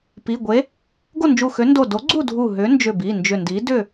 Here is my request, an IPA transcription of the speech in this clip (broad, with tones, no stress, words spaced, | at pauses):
pi˩˧˩ɡʷe˨˥ | ɡo˥˨nd͡ʒu˧˩xø˨˥ ndo˧˩ do˨˥ɡ͡ǀu˥˨ dʱu˧˩ɦʏ˨˥nd͡ʒʏ˧˩ bi˩˧˩ nd͡ʒʏ˧˩ndi˨˥ dʏ˥˨